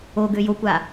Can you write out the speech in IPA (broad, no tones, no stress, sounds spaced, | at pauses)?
o ɡ ø j o kʷ a